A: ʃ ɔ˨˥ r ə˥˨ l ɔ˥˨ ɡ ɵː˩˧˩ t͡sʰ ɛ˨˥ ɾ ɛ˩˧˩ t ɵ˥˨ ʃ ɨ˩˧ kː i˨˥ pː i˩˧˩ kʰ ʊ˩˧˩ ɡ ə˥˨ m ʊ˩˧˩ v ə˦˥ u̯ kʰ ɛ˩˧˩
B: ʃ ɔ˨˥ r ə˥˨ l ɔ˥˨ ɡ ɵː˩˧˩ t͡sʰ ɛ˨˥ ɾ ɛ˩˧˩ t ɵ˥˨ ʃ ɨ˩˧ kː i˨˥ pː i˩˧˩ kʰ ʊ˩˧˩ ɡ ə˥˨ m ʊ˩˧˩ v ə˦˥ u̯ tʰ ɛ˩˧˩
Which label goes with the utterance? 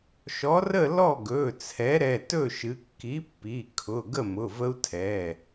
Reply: B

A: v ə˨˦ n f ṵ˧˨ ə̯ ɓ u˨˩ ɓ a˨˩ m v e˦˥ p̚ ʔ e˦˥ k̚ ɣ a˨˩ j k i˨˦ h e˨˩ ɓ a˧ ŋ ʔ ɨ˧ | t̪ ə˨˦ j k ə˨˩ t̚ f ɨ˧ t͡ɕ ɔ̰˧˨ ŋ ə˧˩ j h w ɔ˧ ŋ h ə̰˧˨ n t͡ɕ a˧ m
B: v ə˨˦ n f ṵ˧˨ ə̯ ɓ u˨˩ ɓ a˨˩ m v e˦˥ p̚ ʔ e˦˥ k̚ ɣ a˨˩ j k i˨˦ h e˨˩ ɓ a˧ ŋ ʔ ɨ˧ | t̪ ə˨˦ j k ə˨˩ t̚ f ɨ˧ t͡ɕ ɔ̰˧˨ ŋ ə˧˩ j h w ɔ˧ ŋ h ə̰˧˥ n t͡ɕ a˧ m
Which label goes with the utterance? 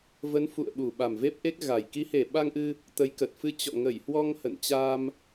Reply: A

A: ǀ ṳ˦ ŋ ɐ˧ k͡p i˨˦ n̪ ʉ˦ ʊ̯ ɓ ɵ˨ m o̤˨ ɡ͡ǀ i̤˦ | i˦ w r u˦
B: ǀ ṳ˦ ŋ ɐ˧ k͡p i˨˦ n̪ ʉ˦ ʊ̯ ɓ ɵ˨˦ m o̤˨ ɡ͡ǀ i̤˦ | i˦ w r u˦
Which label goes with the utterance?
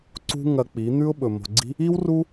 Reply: A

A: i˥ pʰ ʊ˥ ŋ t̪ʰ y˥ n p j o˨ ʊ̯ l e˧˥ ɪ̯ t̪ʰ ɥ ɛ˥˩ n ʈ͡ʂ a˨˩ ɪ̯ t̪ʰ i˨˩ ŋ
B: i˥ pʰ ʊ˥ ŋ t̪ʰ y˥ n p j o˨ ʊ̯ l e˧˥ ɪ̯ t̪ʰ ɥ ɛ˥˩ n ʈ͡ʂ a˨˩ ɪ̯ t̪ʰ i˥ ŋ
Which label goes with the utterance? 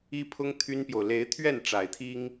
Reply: B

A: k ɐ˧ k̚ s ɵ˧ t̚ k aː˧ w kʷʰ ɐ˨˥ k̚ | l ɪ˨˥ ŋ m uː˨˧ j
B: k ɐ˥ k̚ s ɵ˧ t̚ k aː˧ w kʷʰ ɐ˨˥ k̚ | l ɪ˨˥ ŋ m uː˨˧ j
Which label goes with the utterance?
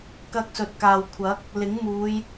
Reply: B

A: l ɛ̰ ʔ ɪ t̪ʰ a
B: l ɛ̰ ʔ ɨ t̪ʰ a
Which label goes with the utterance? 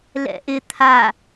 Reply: A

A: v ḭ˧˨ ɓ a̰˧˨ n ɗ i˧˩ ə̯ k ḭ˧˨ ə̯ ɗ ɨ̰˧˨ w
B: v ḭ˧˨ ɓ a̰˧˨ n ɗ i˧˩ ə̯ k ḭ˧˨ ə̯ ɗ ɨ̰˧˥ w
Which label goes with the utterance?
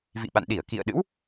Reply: B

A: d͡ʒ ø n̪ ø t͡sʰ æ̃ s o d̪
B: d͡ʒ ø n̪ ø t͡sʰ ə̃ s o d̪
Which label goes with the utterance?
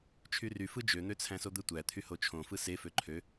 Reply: A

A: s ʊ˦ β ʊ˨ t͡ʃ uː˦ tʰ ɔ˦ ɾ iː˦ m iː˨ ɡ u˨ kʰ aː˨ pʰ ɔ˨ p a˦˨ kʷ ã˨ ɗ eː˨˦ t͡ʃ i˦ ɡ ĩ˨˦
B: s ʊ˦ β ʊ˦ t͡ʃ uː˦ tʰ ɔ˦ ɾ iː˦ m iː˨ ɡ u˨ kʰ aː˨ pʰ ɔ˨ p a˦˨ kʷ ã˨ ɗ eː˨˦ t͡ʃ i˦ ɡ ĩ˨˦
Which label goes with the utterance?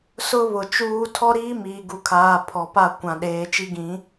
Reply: A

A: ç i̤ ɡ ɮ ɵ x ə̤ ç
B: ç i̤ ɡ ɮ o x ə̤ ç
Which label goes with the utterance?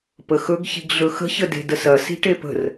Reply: A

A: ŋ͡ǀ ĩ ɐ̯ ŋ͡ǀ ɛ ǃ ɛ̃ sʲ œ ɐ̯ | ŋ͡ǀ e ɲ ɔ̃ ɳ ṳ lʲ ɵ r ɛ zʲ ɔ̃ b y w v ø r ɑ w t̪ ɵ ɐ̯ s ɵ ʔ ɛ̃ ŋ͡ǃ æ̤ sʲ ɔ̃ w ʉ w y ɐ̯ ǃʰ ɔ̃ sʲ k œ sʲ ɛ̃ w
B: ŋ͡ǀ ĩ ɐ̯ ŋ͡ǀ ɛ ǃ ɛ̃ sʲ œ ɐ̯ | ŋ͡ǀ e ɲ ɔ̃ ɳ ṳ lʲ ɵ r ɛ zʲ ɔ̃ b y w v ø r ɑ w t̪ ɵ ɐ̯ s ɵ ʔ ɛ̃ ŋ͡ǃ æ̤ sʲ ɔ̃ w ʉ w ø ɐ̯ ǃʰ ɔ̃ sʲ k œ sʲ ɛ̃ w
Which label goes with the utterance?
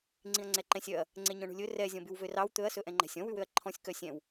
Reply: B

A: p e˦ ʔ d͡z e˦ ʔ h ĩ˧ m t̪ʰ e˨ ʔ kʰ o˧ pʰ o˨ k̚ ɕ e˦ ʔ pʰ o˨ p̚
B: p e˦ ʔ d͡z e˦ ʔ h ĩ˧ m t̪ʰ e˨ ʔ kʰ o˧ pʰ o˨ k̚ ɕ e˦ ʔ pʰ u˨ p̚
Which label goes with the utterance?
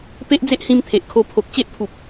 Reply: B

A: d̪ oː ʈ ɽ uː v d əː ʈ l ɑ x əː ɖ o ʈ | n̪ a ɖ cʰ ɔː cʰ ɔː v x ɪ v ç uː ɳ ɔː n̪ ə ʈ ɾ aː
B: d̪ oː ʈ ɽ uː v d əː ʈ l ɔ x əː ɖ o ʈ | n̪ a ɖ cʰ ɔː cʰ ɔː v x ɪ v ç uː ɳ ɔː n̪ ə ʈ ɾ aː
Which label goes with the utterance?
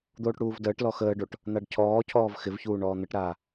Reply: B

